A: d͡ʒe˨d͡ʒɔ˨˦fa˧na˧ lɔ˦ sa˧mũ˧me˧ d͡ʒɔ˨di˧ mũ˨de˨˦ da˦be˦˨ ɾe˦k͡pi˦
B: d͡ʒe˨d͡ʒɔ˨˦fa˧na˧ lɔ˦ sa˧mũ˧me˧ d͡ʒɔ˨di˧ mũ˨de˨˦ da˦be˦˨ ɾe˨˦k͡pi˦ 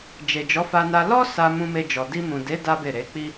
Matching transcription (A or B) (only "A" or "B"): B